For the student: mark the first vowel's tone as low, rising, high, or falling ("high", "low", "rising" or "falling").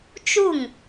falling